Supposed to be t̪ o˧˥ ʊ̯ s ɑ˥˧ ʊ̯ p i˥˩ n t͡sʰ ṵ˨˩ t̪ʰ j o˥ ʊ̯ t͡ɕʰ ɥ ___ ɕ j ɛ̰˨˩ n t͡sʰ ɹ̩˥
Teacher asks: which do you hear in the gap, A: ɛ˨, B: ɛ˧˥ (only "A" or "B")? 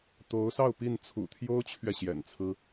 A